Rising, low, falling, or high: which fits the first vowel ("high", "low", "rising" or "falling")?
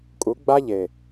rising